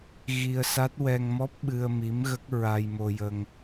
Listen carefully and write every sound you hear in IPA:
ɣ i˧ ə̯ s a˦˥ t̚ w ɛ˧ ŋ m ɔ˦˥ p̚ ɓ ɨ˧ ə̯ m i˧˥ m ɣ ə˦˥ k̚ ɹ a˧ j m o˧ j ə˧ ŋ

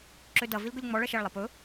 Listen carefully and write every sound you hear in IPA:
ǁ ø d ɐ v i l ɡ ɵ lʲ ŋ͡m ɔ ɭ ɐ ʃ ɐ ɭ lˠ ɐ p ɵ

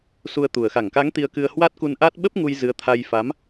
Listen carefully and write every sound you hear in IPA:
s u˧ ə̯ t̪ u˨˩ ə̯ x a˧˩ ŋ k a˨˦ ŋ t̪ i˧ ə̯ k ɨ˧ ə̯ h w a˦˥ t̚ k u˧ n ʔ a˦˥ t̚ ɓ ə˦˥ p̚ ŋ u˧ j z ɨ˨˦ ə̯ t̪ʰ a˧ j f a˨˦ m

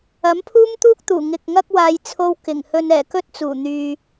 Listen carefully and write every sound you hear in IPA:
ɐ˨˥ m pʰ uː˥ m t̪ uː˥ k̚ t̪ uː˨˩ ŋ ɪ˨ k̚ ŋ ɐ˥ k̚ w aː˧ j t͡sʰ o˥ w k ɪ˨˩ ŋ h ɵ˧ n ɛː˨˩ k ɵ˥ t̚ t͡s uː˨˩ n̪ yː˨

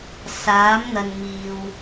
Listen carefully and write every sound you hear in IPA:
s aː˨˧ m n̪ ɐ˨ n m iː˨ w

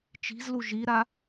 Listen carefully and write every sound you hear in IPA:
t͡ʃ i̤ z l u ʒ i ɾ a

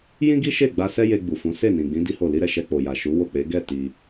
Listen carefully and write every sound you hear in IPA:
j ĩ˦ ɡ i˦ ʃ e˦˨ ɡ͡b a˧ s ɛ˦ j e˧ ɡ͡b u˨ f ũ˨˦ s e˦˨ n ĩ˨ ɡ͡b ĩ˨˦ d i˦ h o˦˨ l i˧ ɾ ɛ˨ ʃ ɛ˧ k͡p o˨ j a˨ ʃ u˨˦ w o˦˨ k͡p e˨˦ ɡ ɛ˦˨ t i˧

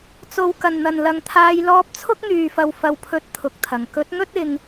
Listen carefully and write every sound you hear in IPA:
t͡s o˨ w k ɐ˨˩ n n̪ ɐ˨˩ n l ɐ˨ ŋ t̪ʰ aː˧ j l ɔː˧ p̚ t͡sʰ ʊ˥ k̚ n̪ yː˨˩ f ɐ˨˩ w f ɐ˨ w pʰ ɵ˨˥ t̚ t̪ʰ ʊ˨ k̚ t̪ʰ ɐ˨˩ ŋ k ɵ˨˥ t̚ ŋ ɵ˥ t̚ ɪ˧ ŋ

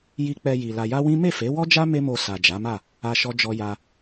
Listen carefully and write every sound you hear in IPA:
j i˧ k͡p ɛ˧ j i˨ l a˧ j a˦ w ĩ˦ m e˦˨ f e˨˦ w ɔ˦ d͡ʒ a˦ m e˦ m o˧ s a˨ d͡ʒ a˨˦ m a˦˨ | a˦ ʃ ɔ˦ d͡ʒ ɔ˦ j a˦

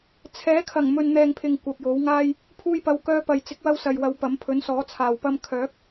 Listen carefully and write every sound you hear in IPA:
t͡sʰ ɛː˨˥ kʰ ɐ˨˩ ŋ m ɵ˨ n n̪ ɛː˨ ŋ pʰ ɪ˨ ŋ kʷ ɐ˨ p̚ j o˨˥ w ŋ aː˥ j | pʰ uː˧ j p ɐ˨˧ w k œː˧ p ɐ˨ j t͡s ɪ˨˥ k̚ w ɐ˧ w s ɐ˨ j w ɐ˨˧ w p ɐ˨˥ m pʰ ɵ˨˥ n s ɔː˨˥ t͡sʰ aː˨ w p ɐ˧ m kʰ œː˨˥ k̚

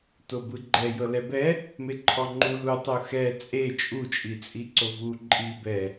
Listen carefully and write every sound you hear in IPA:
t o b ɯ ɡ͡ǃ ɛ j ɤ l ɛ b ɛ | m e ǃʰ ɔ ŋ͡ǃ u l u tˤ u x ɛ t͡sʼ e t͡ʃʼ u t͡ʃʼ i t͡sʼ i ǀ o v u ǃʼ i b ɛ

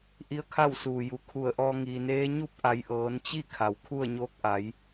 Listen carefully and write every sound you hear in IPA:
ʔ i˧˥ ə̯ kʰ a˥˨ w s uː˩ j u˩˧ kʰ u˧˩ ə̯ ʔ ɔː˧ ŋ iː˩ n eː˧˥ ɲ u˧˥ p̚ ʔ a˩˧ j ʔ ɤː˩˧ n t͡ɕ i˥˨ kʰ a˩ w kʰ u˥˨ ə̯ ɲ oː˧˥ k̚ ʔ a˩˧ j

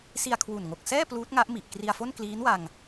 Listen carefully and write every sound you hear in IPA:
s i˧ a̯ kʰ w u˨˩ n ŋ o˨˩ k̚ s ɛː˥˩ p l uː˦˥ t̚ ŋ a˦˥ ʔ m i˨˩ ʔ k r i˧ a̯ f o˥˩ n k l iː˦˥ n w a˧ ŋ

